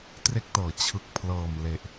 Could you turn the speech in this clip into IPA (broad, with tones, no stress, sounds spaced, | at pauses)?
t r e˦˥ k̚ t ɤː˩˦ t͡ɕʰ ɯ˨˩ k̚ pʰ l ɤː˨˩ m l e˨˩ ʔ